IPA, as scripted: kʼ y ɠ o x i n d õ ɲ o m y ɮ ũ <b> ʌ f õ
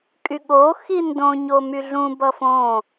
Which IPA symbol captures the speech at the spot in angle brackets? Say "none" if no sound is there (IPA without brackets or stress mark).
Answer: b